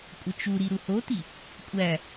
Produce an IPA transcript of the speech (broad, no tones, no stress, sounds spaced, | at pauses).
kʷʼ ə t͡ʃ u ɾ i ɾ u h o t i | kʷʼ æ